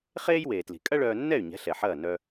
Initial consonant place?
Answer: uvular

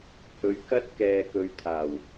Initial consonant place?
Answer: glottal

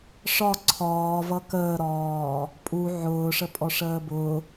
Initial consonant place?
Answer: retroflex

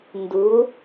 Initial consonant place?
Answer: alveolar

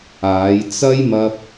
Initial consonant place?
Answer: palatal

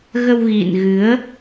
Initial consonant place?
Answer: velar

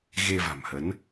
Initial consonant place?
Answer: velar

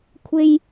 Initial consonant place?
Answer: velar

